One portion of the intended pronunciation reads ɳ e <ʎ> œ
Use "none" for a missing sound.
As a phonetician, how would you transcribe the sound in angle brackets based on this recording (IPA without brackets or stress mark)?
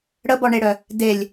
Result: ɽ